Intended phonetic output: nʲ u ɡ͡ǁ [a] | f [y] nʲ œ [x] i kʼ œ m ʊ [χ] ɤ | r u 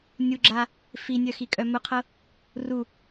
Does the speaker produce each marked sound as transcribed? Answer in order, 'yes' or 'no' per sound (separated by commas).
yes, no, yes, no